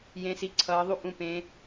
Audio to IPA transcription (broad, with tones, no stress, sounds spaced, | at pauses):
j ẽ˩˧ s i˩˧ ǀʰ ʌː˩˧ ðˤ u˥ ʔ ũ˩˧ p ẽ˩˧